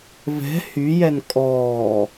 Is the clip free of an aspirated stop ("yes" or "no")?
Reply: yes